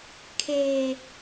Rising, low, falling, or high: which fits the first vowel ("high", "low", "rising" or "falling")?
low